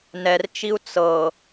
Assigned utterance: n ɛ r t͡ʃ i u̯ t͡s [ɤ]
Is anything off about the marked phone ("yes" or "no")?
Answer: no